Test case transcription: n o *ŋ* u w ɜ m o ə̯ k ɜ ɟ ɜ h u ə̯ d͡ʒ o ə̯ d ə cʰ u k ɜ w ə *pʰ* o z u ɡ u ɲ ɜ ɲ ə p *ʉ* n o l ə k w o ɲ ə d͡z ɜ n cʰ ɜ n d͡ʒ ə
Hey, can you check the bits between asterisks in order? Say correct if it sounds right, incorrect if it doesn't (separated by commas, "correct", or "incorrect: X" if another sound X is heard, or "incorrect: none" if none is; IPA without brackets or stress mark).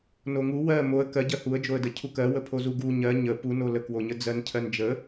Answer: correct, correct, incorrect: u